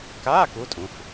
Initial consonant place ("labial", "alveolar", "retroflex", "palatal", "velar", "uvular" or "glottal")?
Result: velar